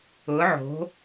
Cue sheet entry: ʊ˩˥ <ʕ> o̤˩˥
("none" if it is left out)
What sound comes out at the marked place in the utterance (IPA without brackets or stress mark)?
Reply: ʕ